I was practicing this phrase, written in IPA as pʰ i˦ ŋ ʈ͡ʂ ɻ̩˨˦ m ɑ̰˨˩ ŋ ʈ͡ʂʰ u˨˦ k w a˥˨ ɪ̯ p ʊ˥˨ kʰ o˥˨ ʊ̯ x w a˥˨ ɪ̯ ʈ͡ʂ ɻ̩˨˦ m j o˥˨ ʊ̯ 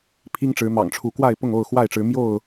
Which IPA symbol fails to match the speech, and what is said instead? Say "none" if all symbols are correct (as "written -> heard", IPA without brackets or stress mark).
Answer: kʰ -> ŋ